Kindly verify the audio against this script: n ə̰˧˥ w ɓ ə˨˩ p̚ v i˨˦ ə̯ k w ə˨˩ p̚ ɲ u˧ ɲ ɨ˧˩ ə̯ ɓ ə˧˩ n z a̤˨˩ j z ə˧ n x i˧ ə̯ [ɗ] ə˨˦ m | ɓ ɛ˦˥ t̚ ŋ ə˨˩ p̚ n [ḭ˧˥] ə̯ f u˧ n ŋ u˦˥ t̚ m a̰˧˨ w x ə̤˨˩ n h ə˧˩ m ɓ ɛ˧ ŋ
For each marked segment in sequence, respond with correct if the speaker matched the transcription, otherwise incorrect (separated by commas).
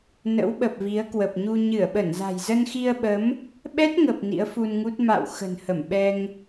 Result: incorrect, correct